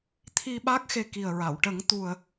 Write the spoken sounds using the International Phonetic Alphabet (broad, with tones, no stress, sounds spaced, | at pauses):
t̪ʰ i˧ ɓ a˦˥ k̚ x e˧ k i˨˩ ə̯ ɹ a˨˩˨ w ʈ ə˨˩˦ ŋ t̪ u˨˩ ə̯